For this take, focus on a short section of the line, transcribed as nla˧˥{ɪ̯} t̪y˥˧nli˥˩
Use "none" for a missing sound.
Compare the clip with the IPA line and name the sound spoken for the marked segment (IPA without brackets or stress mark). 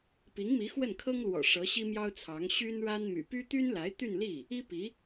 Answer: ɪ̯